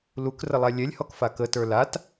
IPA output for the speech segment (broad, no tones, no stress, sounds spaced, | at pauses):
l u k r ə lˠ a lʲ ɛ lʲ h ɔ k f a k ə t ə˞ l a t